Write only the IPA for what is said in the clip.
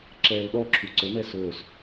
ǁɛːlɗɔǁʰu ǀɵnɛ sɵːs

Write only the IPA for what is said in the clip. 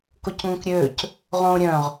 kocŋõkɾʲøːc | ʁõːɾʲœ̃ʁ

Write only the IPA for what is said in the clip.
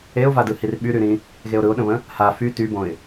eʊ̯vadɯhir ɓyɾyɾĩ | ɣeʊ̯ɾɯʊ̯ɗə̃βə̃ | ha fy tybõɪ̯

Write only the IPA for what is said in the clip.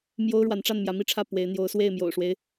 mjo˦ʊ̯ɻwa˨˦nʈ͡ʂa˥˨n mjä˨˦mi˥˨ʈ͡ʂʰä˥˨ pwe˨˦ɪ̯ n̪jo˨˦ʊ̯swe˥˨ɪ̯ mjo̰˨˩ʊ̯ʂwe˦ɪ̯

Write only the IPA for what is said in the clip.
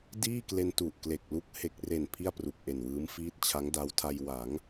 diː˥˩kle˧n tu˨˩ʔkle˨˩k̚ lu˦˥k̚ he˨˩k̚re˨˩n pʰi˥˩a̯pru˨˩k̚ʔe˨˩nwɯː˦˥m fiː˦˥t̚t͡ɕʰa˦˥ŋ da˦˥wtʰa˧j wa˩˦ŋ

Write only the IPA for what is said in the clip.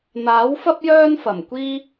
n̪aː˨˥wfɐ˥p̚ jœː˥nfɐ˨˩mkʷiː˥

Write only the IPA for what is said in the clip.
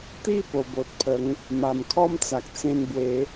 t̪i˥˧ po˨˩bo˨t̚pʰə˨˦ŋ | ma˨˩mkʰɔ˦mt͡sa˨k̚ t͡sẽ˧nbwe˨˦

